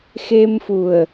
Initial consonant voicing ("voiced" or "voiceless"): voiceless